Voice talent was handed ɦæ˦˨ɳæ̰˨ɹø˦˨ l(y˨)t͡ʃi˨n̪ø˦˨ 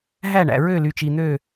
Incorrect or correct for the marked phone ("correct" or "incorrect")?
correct